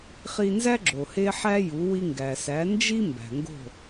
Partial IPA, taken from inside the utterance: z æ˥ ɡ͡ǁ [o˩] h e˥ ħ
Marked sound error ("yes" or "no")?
no